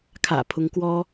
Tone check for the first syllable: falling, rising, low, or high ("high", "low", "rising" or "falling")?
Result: low